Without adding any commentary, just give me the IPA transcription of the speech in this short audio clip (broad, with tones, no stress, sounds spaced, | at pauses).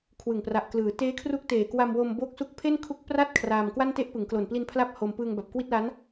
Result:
kʰ w ɯ˨˩ ŋ p r a˨˩ ʔ k l ɯː˩˦ t eː˦˥ kʰ r u˦˥ k̚ t eː˨˩ k w a˧ m w o˧ m b o˦˥ k̚ s u˦˥ k̚ pʰ e˥˩ n kʰ u˦˥ k̚ p r a˥˩ t̚ kʰ r aː˧ m k w a˥˩ n t e˥˩ ʔ p ɯ˩˦ ŋ k l o˨˩ n p l i˧ n pʰ l a˦˥ p̚ h o˧ m p ɯː˧ ŋ b a˨˩ p̚ k w i˥˩ t̚ l a˦˥ n